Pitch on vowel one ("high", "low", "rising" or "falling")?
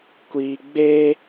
high